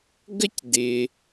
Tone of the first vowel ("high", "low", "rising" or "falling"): high